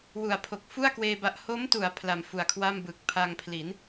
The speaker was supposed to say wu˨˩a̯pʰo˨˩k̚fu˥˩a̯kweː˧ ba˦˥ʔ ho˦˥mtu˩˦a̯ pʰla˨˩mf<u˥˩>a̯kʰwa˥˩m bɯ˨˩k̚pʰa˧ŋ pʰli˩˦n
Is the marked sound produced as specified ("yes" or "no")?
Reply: no